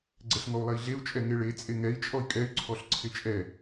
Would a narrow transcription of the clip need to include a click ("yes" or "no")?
yes